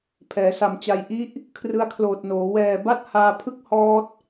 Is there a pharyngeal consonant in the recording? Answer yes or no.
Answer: no